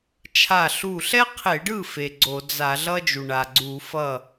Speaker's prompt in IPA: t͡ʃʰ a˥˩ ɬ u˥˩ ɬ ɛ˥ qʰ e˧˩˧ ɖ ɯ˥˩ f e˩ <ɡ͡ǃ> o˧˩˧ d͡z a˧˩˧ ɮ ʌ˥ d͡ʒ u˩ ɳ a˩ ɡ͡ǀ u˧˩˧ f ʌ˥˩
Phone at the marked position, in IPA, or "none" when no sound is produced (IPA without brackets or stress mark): ɡ͡ǀ